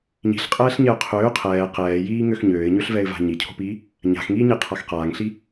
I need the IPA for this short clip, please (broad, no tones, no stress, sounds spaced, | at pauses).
ɲ i̤ ɬ qʼ ɛː ɬ ɲ ɛ ʊ̯ qʰ øː qʰ ɛː q ɛː j iː ŋ ø x ɲ øː ɪ̯ ɲ ø ɬ v ɛ ɪ̯ v a̤ ɲ i cʰ o̤ p iː | ɲ a̤ x ŋ iː ɲ i qʰ a x q aː ŋ ɬ i